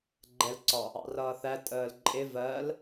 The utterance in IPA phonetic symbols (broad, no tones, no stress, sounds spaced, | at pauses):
ɡ͡ǃ ɛ l ǀ ɒ | ɑ̰ r ʌː θ æ tʼ əː l ǃʼ ɪ v ɜ l